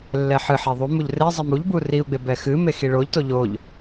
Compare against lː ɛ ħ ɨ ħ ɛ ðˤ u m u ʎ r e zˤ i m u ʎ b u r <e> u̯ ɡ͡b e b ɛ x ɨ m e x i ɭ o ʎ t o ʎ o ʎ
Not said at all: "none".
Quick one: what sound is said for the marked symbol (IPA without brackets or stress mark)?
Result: i